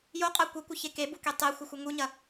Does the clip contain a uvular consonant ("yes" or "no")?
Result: yes